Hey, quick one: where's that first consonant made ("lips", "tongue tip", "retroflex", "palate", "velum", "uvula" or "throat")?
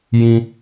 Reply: palate